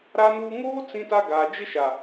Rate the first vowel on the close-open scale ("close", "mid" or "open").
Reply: open